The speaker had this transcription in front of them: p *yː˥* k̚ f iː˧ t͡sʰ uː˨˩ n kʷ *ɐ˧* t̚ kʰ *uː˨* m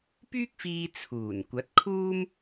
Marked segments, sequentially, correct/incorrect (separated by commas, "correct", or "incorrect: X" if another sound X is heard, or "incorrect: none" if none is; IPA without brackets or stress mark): correct, incorrect: ɐ˨˥, incorrect: uː˥